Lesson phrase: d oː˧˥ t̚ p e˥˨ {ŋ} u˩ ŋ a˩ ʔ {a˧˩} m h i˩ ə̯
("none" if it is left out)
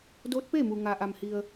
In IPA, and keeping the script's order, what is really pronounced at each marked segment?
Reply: m, a˩

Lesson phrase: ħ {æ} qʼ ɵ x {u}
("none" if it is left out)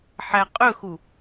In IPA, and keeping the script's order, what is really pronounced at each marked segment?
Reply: æ, u

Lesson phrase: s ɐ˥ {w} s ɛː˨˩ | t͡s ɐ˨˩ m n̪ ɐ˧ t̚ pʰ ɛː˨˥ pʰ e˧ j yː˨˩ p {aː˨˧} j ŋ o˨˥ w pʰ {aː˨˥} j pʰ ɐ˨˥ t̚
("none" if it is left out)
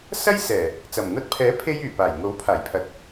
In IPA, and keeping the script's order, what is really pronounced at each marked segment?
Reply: j, aː˨˩, aː˨˩

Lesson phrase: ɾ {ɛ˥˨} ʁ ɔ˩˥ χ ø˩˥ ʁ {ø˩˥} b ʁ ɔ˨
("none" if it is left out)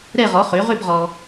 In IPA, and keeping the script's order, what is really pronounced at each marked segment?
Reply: ɛ˥˨, ø˥˨

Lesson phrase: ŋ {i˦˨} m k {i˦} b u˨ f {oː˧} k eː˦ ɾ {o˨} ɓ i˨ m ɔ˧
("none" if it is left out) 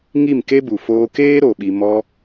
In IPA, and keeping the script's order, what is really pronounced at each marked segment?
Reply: i˦˨, e˦, oː˧, o˨

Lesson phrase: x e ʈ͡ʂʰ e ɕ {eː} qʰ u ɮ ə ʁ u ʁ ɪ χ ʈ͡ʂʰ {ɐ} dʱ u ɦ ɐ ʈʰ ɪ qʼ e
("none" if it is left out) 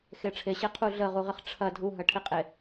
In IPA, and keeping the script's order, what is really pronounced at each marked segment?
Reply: e, ɐ

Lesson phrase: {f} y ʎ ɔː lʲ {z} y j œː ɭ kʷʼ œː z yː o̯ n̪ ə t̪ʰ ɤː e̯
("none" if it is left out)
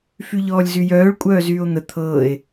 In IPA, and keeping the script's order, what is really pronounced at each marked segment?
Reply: f, z

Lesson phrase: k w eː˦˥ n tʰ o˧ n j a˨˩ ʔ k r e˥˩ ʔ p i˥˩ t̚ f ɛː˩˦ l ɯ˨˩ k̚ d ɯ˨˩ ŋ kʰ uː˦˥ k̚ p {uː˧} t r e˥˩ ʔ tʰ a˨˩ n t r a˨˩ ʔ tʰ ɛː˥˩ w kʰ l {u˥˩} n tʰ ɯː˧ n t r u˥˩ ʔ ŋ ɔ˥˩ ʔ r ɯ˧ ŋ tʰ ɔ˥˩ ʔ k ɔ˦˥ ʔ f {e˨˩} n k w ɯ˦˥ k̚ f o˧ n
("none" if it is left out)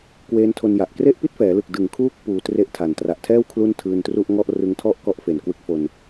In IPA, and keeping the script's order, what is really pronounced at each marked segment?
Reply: uː˧, u˥˩, e˨˩

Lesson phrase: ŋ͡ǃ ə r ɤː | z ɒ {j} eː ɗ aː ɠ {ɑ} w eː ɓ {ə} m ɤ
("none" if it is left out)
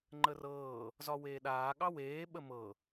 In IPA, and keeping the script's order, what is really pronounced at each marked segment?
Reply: w, ɑ, ə

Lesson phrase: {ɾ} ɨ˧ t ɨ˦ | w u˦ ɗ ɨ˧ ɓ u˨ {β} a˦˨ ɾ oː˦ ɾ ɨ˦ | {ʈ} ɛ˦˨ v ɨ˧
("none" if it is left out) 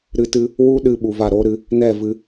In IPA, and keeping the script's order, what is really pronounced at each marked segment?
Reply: ɾ, v, n

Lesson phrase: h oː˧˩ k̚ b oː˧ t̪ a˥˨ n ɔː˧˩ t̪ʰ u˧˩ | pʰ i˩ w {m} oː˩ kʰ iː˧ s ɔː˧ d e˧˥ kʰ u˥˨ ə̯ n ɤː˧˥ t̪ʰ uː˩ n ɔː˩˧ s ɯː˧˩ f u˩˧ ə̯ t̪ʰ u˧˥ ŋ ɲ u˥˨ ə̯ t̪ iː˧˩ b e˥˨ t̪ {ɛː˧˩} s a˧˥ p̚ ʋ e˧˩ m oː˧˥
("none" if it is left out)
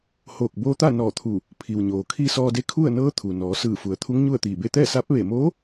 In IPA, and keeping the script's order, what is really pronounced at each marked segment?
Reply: ɲ, ɛː˥˨

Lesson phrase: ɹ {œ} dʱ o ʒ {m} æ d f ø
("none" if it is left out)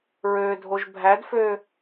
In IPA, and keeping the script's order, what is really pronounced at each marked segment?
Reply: ø, bʱ

